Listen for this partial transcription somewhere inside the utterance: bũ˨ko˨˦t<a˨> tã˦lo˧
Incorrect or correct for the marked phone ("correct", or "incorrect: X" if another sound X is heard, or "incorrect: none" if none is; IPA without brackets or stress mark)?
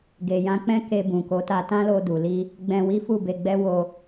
incorrect: a˧